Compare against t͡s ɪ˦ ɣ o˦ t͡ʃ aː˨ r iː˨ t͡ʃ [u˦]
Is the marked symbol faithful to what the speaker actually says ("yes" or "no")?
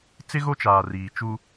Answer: yes